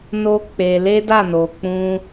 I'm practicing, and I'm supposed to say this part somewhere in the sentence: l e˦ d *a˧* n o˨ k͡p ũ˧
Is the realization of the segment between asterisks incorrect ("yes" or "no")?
yes